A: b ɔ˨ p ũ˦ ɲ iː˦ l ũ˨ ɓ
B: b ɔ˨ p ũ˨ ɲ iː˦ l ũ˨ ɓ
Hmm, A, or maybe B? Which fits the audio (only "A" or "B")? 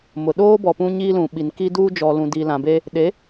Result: A